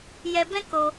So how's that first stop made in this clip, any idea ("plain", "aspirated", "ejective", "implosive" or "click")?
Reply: plain